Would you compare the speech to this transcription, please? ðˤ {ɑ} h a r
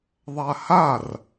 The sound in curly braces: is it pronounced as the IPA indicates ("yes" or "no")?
no